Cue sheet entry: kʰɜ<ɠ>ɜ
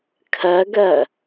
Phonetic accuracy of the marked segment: incorrect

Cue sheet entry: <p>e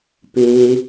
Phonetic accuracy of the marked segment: correct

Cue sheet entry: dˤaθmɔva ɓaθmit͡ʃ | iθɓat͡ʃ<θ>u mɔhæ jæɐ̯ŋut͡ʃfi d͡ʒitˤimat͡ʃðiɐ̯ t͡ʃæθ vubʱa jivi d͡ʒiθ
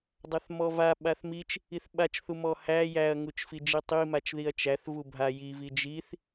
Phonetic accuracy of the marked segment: correct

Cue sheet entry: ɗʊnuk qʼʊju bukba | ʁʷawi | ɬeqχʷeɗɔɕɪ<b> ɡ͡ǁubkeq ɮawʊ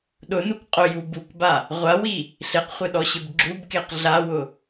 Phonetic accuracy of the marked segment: correct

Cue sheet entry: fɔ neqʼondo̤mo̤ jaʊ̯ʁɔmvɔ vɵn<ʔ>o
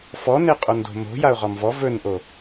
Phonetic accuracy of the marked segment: correct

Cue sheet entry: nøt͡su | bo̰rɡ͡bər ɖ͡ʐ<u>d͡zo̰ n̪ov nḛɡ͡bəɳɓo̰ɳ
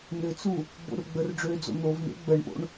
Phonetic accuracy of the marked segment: incorrect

